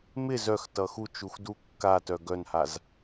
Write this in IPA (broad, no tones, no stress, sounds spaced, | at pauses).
m ɪ z œ x t ʌ x u t͡ʃ u x d u kː a t œ ɡ œ n h a z